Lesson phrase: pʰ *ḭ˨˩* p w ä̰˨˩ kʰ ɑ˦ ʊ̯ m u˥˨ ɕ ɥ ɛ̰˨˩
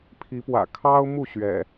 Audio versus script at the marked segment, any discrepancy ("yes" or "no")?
yes